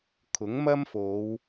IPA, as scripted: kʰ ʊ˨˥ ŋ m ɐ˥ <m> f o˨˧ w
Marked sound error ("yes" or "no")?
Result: no